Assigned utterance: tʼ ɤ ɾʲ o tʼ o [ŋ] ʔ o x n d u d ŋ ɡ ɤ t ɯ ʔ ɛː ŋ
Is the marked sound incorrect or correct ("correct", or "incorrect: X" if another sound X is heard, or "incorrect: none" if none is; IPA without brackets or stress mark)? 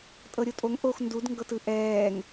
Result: correct